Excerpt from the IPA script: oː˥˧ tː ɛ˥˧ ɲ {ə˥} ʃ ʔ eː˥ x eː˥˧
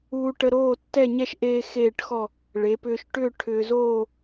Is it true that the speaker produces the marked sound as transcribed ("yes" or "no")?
no